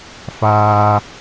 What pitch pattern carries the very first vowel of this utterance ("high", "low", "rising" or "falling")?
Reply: low